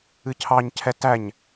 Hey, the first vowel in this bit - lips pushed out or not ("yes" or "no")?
no